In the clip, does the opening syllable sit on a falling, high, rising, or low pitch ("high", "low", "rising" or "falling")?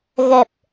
low